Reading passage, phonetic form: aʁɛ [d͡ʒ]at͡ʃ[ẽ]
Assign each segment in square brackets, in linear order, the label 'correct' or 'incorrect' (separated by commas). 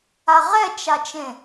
incorrect, correct